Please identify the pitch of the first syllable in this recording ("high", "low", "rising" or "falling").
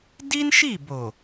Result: high